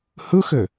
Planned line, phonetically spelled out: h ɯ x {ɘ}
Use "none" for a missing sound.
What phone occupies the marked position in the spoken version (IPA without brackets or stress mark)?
ɘ